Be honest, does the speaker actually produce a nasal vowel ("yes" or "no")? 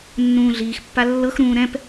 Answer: yes